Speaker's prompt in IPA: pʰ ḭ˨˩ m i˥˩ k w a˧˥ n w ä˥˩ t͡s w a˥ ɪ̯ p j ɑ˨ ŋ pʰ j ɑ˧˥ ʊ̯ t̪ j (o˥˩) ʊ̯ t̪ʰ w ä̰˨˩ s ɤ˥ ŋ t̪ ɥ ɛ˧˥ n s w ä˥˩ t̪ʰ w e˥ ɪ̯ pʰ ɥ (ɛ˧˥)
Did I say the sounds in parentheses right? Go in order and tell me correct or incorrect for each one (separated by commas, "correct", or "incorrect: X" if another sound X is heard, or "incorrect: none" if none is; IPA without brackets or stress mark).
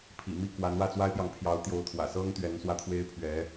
incorrect: o˧˥, correct